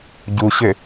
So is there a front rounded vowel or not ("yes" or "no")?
yes